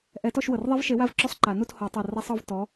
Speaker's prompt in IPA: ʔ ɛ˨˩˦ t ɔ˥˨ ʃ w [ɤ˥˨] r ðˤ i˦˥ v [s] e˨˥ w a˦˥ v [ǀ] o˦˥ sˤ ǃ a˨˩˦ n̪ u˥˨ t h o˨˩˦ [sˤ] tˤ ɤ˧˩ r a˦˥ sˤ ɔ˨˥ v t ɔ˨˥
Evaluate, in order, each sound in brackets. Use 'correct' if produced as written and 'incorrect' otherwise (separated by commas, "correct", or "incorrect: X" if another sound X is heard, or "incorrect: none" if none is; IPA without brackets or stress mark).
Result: incorrect: ɤ˩, incorrect: ʃ, incorrect: ǁ, incorrect: none